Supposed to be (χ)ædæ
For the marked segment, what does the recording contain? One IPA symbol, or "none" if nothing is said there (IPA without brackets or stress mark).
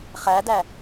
χ